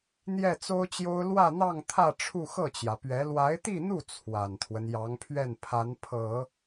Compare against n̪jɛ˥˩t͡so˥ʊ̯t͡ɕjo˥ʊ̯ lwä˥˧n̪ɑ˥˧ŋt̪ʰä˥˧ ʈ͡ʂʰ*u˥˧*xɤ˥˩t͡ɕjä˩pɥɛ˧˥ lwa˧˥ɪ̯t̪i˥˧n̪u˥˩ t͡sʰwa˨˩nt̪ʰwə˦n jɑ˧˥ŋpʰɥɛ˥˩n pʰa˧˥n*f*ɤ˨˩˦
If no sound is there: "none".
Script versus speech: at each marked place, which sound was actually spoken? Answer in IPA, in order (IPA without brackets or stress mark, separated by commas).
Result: u˥˧, pʰ